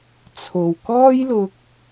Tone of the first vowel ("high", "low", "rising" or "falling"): low